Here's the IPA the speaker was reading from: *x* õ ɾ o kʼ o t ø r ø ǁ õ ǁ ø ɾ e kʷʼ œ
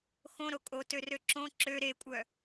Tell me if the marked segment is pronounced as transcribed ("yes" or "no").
yes